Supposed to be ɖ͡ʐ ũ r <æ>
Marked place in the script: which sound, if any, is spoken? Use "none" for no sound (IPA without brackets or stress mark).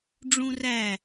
æ